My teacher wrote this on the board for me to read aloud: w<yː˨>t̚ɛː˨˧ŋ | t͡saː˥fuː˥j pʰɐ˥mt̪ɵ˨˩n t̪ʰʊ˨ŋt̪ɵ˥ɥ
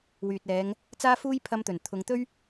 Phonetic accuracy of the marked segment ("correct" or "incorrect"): correct